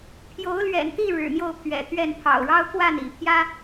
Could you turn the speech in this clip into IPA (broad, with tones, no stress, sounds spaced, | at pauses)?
pʰ j o˨˦ ʊ̯ l ɥ ɛ̰˨˩ n t̪ i˥˨ ɻ ɻ̩˨˩ n̪ j o˥˨ ʊ̯ pʰ ɥ ɛ̰˨˩ t̪ ɥ ɛ˥˨ n pʰ ɑ̰˨˩ ʊ̯ ɻ ɑ˦ ʊ̯ k w a˥˨ n ḭ˨˩ pʰ j ä˦